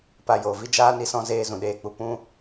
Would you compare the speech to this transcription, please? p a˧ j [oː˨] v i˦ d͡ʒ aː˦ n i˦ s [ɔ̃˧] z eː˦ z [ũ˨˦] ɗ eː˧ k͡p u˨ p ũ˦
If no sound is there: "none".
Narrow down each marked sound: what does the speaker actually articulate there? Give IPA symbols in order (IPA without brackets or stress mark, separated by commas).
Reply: o˨, ɔ̃˦, ũ˨